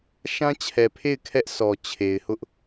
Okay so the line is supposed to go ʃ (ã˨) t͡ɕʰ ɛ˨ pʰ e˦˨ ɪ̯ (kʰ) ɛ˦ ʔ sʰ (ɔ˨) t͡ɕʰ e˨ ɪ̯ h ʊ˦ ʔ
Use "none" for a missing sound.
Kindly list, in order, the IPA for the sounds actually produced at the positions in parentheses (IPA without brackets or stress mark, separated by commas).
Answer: ã˦, kʰ, ɔ˨